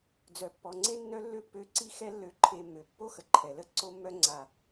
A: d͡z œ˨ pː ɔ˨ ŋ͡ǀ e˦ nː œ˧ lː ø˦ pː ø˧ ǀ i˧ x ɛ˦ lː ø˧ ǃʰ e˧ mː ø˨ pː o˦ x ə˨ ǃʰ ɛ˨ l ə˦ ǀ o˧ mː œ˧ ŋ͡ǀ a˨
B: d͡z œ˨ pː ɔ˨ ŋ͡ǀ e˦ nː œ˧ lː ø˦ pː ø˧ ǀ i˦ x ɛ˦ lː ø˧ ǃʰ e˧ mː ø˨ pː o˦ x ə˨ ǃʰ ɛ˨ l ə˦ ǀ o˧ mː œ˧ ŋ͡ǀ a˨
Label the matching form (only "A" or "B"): B